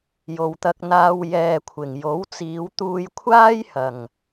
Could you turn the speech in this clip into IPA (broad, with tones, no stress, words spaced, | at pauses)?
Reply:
jo˨wt̪ɐ˧k̚n̪aː˧w jɛː˨kʷʰɪ˨˩ŋjo˨˥w t͡siː˨˧wt̪uː˧jkʷʰaː˥j hɐ˨˩ŋ